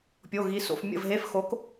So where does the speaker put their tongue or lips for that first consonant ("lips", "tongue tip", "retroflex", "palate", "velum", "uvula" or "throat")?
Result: lips